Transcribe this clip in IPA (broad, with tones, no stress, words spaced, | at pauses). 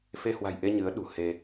fe˧hwa̤˨˩jʔe˧ ɲɨ˨˦ə̯ ɗṳ˨˩he˧